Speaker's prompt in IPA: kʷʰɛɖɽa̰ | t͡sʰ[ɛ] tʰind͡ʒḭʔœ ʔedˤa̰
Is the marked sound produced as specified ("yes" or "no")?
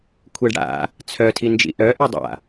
no